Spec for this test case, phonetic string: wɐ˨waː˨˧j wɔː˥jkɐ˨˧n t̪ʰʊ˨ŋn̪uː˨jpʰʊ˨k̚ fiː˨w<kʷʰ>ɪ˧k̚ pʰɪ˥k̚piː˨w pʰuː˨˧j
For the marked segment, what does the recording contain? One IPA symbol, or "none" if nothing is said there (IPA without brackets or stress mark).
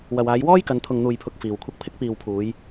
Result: kʷʰ